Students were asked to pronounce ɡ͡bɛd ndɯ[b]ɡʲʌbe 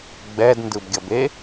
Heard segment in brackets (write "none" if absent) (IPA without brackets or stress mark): b